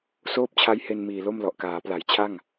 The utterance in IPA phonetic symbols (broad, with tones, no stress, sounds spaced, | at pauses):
s oː˥˩ p̚ t͡ɕʰ a˦˥ j h e˧ n m iː˨˩ l o˥˩ m l ɔ˨˩ ʔ k aː˩˦ p l a˩˦ j t͡ɕʰ a˥˩ ŋ